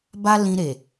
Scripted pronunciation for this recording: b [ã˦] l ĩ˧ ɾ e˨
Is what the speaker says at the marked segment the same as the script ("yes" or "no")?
no